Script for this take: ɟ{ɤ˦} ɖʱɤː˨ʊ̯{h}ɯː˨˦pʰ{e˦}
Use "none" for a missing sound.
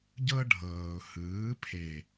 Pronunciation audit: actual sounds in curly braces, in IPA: ɤ˦, h, e˨

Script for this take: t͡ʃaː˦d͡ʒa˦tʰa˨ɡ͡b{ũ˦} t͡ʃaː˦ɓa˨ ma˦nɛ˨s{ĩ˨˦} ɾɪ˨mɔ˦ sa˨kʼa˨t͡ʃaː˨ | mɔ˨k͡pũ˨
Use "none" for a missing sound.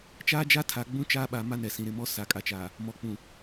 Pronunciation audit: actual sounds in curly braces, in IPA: ũ˦, ĩ˨

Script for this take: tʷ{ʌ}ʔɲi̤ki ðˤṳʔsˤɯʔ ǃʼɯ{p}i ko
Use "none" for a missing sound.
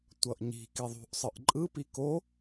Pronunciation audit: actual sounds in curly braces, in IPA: ʌ, p

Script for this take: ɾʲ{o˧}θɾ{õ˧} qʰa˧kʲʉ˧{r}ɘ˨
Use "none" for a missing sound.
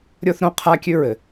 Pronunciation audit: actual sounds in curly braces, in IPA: o˧, õ˧, ɹ

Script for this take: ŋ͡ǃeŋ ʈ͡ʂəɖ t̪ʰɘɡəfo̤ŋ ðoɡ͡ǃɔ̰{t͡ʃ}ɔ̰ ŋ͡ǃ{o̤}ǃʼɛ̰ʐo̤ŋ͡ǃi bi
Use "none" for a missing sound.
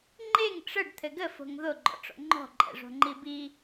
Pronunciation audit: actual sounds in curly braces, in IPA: ʈ͡ʂ, ɔ̤

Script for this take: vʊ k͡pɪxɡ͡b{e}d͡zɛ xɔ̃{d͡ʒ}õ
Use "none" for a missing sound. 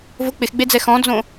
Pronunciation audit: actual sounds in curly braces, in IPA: e, d͡z

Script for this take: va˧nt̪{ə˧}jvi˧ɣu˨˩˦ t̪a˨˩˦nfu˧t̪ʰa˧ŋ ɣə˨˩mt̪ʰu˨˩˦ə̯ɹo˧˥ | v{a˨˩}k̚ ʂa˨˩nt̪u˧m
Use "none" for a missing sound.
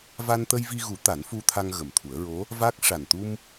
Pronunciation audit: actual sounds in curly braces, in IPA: ə˧, a˦˥

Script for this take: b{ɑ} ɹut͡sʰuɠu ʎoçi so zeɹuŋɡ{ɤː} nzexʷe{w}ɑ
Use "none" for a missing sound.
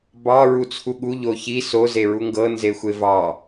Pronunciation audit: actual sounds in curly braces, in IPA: ɑ, ɤ, v

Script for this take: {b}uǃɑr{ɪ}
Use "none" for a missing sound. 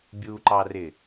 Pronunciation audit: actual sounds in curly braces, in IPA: bʲ, ɪ

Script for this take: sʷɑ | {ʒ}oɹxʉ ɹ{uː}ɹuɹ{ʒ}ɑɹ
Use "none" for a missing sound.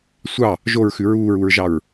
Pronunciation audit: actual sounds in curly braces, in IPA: ʒ, uː, ʒ

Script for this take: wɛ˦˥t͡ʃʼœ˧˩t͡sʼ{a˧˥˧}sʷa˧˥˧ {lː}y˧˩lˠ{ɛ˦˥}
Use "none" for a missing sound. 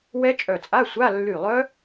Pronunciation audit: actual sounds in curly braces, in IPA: a˧˥˧, lː, œ˦˥

